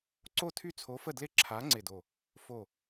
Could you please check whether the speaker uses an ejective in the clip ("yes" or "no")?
no